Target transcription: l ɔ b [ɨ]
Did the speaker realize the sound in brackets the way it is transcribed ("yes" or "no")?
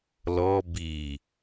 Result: no